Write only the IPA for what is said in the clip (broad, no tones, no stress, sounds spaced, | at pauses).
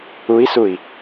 u i̯ s u i̯